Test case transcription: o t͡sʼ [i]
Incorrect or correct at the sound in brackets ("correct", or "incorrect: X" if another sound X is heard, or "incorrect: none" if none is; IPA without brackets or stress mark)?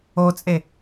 incorrect: e